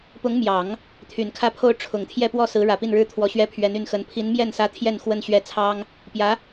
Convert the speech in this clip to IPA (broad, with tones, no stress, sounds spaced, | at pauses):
p ʊ˧˥ ŋ m j ɑ˨˩˦ ŋ | t̪ʰ y˨˩ n kʰ ä˥˩ pʰ o˥ ʊ̯ ʈ͡ʂʰ ʊ˨˩ ŋ t̪ʰ j ɛ˥˧ p w ɔ˥˩ s ɹ̩˧˥ ɻ ä˨˩ p i˥˩ n ɻ ɻ̩˥ t̪ʰ w ɔ˧˥ ɕ ɥ ɛ˥ pʰ ɥ ɛ˧˥ n y˥˩ n x ə˧˥ n pʰ i˧˥ n m j ɛ˥˩ n s ä˧˥ t̪ʰ j ɛ˥˧ n x w ə˥˧ n ɕ ɥ ɛ˥˩ t͡sʰ ɑ˥ ŋ | p j ä˧˥